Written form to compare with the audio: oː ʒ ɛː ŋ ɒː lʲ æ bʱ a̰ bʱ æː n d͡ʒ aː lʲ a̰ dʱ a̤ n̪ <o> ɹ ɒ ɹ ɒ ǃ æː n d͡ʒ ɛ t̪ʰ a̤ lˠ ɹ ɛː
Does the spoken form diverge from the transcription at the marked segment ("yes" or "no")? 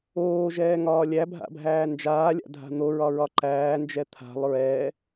no